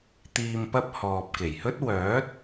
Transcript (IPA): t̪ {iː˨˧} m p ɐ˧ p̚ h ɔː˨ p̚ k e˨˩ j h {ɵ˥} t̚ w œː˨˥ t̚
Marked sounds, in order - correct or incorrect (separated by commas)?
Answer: incorrect, correct